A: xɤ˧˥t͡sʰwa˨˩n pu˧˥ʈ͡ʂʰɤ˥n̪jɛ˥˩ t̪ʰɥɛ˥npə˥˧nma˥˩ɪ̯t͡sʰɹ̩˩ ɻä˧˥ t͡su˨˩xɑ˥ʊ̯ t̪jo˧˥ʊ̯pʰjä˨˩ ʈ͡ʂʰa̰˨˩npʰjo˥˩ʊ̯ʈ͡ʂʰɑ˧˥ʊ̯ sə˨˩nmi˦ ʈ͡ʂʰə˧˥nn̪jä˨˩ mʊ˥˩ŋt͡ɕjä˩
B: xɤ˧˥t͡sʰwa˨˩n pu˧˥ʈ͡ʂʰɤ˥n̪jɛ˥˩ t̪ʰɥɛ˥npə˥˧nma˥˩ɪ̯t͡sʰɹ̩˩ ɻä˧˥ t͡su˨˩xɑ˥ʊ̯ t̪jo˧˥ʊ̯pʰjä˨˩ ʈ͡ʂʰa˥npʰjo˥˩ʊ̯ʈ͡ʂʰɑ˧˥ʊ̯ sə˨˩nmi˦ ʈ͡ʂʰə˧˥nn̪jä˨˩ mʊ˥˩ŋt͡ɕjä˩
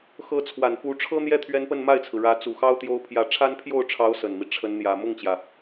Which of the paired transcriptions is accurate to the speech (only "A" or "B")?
B